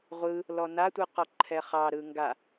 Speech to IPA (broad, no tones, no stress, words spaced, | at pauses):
ʁʷɯ | lɔnatʷɯ qɔǃʰɛχɑɾɯ ŋɡa